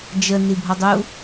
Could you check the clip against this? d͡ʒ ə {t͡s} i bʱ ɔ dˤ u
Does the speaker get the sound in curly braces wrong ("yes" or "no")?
yes